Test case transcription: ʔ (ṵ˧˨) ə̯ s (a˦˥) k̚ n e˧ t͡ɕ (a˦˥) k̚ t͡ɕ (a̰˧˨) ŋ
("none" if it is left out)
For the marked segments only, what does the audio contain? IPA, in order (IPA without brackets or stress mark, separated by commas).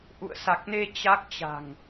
ṵ˧˨, a˨˩, a˦˥, a̤˨˩